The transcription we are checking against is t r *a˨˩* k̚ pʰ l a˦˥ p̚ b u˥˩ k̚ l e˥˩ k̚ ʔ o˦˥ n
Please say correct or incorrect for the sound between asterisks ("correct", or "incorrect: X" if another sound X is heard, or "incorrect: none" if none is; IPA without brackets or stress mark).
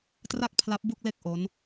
incorrect: a˥˩